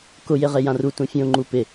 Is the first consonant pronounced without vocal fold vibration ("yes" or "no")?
yes